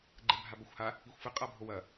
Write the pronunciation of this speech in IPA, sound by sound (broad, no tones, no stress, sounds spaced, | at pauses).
ɡ͡ǃ ɛ bʱ a b ɐ xʷ h a | i xʷ f ɘ qʼ a bʱ o w ɐ